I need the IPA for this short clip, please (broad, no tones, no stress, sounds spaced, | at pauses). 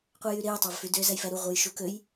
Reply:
qʷ æ j y ɾ e j tˤ ɑ v f y d ø z æ j f æ ɾ u ʁʷ ɯ j ʃ u k ø j